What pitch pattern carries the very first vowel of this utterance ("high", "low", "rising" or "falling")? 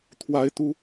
high